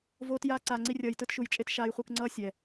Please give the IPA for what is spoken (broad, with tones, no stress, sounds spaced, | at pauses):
v oː˧ t j aː˧ ǀ aː˨ ŋ͡ǀ i˧ rʲ ʌː˨ j t ɯ˧ t ʃ u˨˦ j t͡ʃʼ e˦ t ʃ aː˧ j χʷ ɯ˧ k ŋ͡ǀ ʌː˦ sʲ ɛ˨